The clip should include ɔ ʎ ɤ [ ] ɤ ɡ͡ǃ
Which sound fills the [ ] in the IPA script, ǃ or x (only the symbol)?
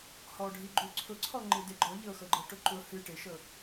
x